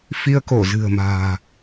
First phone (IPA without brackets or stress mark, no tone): f